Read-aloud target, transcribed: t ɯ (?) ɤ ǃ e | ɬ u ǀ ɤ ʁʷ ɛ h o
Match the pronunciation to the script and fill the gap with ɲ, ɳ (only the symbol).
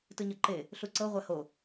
ɲ